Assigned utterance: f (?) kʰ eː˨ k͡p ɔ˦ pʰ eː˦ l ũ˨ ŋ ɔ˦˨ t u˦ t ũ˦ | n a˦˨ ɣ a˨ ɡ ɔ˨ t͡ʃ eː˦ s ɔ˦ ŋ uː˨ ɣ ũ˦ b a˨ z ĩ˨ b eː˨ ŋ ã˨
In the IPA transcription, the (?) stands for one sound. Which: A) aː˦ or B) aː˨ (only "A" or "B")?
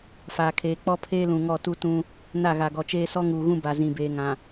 B